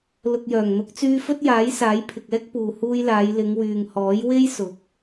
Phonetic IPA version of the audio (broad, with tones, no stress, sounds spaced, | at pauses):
l ʊ˨ k̚ j œː˨˩ ŋ n̪ ʊ˨˥ k̚ t͡s yː˧ f ɵ˥ t̚ j aː˨˥ j s aː˨˥ j pʰ ɪ˨ k̚ ɛː˥ k̚ p uː˨ h uː˧ j l aː˨˧ j l ɪ˨˧ ŋ w yː˨ ŋ h ɔː˨˥ j w e˥ j s ʊ˨˥ k̚